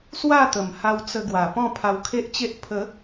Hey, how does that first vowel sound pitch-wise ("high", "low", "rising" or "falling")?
falling